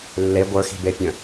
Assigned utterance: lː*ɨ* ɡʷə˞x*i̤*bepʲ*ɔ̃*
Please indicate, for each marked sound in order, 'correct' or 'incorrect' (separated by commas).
incorrect, correct, incorrect